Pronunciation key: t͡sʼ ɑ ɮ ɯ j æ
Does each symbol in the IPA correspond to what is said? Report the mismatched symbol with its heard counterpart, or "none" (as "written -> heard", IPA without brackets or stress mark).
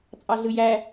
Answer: none